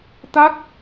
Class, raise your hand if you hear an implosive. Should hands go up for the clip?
no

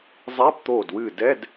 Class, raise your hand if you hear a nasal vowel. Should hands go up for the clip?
no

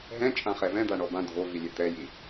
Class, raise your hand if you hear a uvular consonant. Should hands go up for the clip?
yes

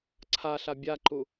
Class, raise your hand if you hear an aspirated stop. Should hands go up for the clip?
yes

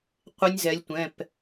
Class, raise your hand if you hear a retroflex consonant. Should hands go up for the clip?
no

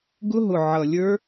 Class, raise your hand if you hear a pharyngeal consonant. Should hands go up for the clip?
yes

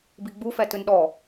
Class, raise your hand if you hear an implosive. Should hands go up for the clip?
yes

